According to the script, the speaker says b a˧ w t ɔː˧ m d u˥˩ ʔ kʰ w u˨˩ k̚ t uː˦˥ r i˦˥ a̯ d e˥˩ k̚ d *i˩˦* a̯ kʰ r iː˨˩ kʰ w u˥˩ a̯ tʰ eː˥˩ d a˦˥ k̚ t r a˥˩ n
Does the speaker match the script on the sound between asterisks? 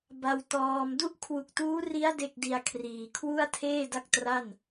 no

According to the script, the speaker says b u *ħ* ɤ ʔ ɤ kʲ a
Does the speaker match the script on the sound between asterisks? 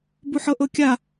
yes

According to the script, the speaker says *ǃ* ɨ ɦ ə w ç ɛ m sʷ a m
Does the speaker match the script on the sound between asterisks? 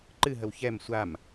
yes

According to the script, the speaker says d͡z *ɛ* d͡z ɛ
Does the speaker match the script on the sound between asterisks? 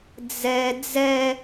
yes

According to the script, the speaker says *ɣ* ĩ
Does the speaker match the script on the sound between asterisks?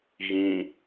yes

